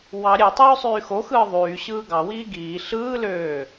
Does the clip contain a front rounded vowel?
yes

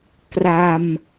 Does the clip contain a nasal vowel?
no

